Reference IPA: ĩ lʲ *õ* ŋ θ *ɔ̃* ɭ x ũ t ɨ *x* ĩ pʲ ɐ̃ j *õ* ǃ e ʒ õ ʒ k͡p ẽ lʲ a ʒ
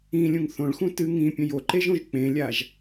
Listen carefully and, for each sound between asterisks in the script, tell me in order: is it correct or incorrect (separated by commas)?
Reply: incorrect, incorrect, incorrect, incorrect